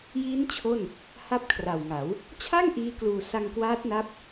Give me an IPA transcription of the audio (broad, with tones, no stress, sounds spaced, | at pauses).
j iː˦˥ n t͡ɕʰ o˥˩ n | h a˦˥ p̚ kʰ r a˨˩ w ŋ a˩˦ w | t͡ɕʰ a˥˩ ŋ ʔ iː˦˥ k l uː˧ s a˧ ŋ k w aː˦˥ t̚ n a˦˥ p̚